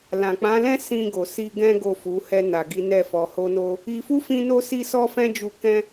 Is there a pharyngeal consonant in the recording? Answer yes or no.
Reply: no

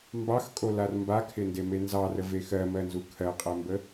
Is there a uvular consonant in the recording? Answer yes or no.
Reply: yes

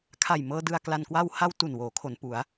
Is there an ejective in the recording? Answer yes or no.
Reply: no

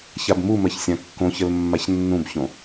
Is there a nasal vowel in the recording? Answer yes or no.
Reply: yes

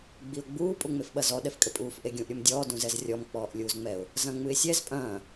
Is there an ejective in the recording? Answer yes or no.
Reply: yes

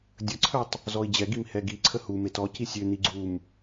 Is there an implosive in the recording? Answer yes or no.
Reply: no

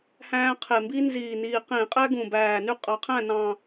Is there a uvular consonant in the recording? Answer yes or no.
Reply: yes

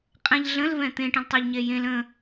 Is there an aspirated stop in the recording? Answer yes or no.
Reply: no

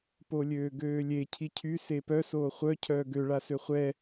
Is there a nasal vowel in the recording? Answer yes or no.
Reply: no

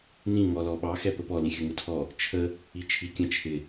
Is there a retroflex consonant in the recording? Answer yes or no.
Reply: no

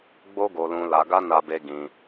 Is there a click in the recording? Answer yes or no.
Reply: no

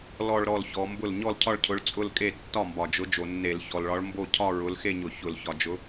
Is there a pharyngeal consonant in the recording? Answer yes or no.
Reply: no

